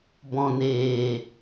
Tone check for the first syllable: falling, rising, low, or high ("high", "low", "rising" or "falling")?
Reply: low